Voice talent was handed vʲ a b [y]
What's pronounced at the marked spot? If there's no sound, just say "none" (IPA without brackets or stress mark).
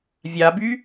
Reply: y